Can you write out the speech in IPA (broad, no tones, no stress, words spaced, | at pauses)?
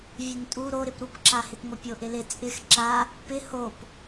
vʲɘntʼu ɾoɾɪp ɾupǁahɪpŋʷɘ pʲoʔɪlɪ t͡sʼɪx ǁa | pɪ hop